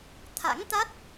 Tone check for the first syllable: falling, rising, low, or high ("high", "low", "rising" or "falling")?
rising